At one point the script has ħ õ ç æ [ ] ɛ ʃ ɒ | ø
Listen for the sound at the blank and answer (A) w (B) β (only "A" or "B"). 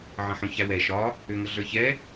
A